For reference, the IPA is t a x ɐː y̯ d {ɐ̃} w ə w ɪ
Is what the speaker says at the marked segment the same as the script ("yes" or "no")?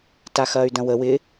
yes